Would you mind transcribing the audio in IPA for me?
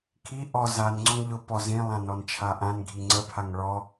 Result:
kʰi ʔɔ zanŋ͡ǀɔŋ ʎʊpɔ zĩlˠãnɔnt͡ʃʰa ʔãnɡʱi ŋ͡ǀəpʰaŋ ɭɔ

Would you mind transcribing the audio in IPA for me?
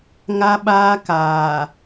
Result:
ŋa˦ɓaː˦kaː˨

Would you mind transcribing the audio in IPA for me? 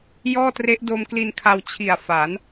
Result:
jɔː˥˩tre˦˥ʔdo˧m kli˧nkʰa˧w t͡ɕʰi˨˩a̯fa˩˦n

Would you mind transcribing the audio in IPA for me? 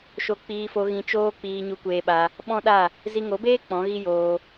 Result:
ʃo˧k͡piː˧fo˧ ɣĩ˧t͡ʃoː˦ k͡piː˧ɲu˧kʷeː˧ɓa˧ | ɓɔ̃˦ɗa˦˨ | zi˧ŋo˨˦beː˦ k͡pɔ̃˨˦ɣi˦joː˧

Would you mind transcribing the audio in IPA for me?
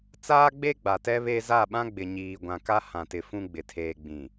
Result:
t͡saː˦ɡ͡be˦ɡ͡ba˨ tɛ˦ βe˦ za˦˨ɓã˦ɡ͡bɪ˨ ɲiː˨ ɡʷã˨ka˦ hã˦˨tɪ˦ fũ˦ɡ͡bɪ˨ tʰeː˨ɡ͡bĩ˨

